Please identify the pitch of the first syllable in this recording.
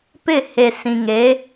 falling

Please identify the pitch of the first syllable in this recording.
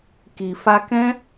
low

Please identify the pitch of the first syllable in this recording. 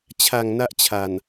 low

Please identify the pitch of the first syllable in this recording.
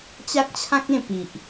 high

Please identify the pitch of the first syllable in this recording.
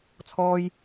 high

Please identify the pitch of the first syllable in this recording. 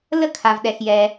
falling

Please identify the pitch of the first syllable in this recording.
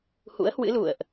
rising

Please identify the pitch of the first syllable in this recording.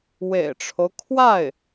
low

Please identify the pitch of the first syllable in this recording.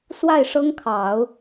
falling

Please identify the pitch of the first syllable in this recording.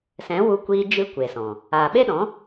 rising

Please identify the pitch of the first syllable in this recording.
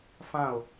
falling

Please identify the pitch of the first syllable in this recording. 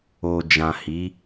low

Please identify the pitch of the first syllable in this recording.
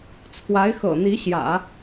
rising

